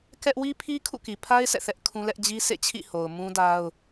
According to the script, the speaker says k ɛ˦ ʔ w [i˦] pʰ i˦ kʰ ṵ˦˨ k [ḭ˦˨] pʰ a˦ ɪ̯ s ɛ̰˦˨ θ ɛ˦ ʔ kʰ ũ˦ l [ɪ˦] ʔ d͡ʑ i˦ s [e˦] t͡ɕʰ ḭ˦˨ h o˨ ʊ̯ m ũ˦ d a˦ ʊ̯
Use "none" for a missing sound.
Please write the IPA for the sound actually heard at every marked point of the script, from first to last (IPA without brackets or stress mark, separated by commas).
i˦, i˨, ɛ˦, ḛ˦˨